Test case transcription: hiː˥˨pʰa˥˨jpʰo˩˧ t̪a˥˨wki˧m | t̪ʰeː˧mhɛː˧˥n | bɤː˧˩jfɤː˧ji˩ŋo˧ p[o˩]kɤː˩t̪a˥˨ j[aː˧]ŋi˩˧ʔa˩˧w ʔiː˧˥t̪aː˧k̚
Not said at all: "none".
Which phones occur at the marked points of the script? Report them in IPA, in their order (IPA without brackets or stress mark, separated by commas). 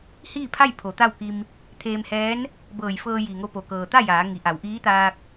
o˩, aː˩˧